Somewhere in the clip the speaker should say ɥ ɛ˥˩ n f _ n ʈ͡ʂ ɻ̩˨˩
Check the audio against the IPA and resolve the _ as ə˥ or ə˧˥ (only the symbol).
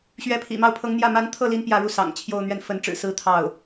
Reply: ə˧˥